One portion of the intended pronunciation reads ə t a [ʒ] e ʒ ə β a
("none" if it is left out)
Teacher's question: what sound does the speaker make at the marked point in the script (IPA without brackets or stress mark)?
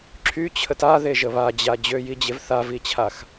ð